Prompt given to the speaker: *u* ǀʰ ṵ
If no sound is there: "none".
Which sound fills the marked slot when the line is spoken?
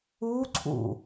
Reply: u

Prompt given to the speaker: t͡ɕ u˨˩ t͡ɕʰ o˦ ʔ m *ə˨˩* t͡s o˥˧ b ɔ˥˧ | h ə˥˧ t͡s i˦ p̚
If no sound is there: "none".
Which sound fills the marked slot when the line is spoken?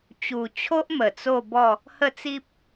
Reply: ə˨˩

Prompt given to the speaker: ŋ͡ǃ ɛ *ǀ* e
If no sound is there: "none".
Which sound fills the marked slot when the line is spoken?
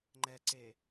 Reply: ǀ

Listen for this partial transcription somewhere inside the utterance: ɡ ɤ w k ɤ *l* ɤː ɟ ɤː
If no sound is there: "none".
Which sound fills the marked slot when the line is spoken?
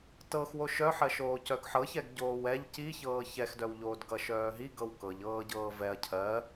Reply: ʎ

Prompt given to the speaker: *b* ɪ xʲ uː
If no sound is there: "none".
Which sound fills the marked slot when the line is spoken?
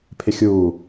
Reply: pʰ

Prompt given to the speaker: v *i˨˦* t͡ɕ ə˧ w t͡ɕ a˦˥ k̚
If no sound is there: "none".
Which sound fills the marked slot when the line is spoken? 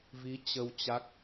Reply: i˨˦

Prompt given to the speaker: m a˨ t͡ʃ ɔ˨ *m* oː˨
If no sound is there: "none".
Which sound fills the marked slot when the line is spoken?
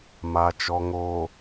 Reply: ŋ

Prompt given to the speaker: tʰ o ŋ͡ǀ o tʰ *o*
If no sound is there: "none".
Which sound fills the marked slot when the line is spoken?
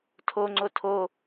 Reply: o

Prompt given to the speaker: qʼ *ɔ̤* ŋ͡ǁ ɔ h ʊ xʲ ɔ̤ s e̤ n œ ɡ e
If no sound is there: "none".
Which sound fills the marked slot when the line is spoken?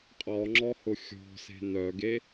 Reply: ɔ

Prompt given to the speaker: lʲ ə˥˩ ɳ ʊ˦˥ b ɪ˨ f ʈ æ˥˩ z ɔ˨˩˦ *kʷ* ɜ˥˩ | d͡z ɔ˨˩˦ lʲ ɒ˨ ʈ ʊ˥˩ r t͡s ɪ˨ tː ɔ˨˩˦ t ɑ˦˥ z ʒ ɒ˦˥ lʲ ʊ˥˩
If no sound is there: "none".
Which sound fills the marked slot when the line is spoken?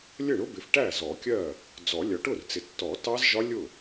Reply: kʲ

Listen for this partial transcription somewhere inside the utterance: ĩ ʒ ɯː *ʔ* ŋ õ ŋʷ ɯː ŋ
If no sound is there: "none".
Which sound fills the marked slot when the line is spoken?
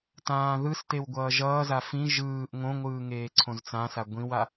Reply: ʔ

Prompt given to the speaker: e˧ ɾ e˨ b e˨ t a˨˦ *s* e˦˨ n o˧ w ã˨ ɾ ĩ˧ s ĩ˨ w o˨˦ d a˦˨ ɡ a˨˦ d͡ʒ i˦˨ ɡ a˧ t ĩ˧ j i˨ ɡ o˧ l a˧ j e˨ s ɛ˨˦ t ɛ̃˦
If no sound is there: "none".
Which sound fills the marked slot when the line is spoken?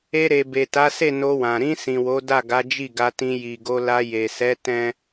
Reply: s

